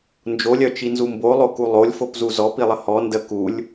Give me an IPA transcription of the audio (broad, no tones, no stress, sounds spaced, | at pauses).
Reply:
n d͡ʒ o lʲ œ t͡ʃ i n z u m b o lˠ o k u lˠ o lʲ f o p z u z ɔ p i lˠ ə h ɔ n d ə k u lʲ